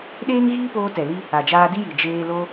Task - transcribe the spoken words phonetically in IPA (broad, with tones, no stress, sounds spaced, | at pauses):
ɗ eː˦ ŋ ɣ iː˦ p oː˧ t ɛ˨ l i˧ | a˨ d͡ʒ aː˧ d i˦ j i˨ d͡ʒ eː˧ l o˦